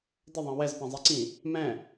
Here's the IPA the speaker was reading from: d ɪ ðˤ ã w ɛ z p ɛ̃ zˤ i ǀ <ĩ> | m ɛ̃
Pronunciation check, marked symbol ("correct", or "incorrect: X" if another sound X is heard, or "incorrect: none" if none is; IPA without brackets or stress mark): correct